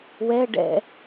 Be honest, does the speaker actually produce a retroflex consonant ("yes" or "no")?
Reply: yes